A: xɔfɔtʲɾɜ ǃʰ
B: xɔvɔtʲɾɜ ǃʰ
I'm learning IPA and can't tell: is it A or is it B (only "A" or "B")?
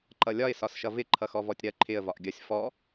B